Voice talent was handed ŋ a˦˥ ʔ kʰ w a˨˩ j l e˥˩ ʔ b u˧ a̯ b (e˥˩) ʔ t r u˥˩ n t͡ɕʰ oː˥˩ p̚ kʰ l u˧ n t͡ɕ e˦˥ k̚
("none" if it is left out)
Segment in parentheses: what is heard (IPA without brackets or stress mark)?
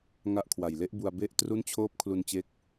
e˥˩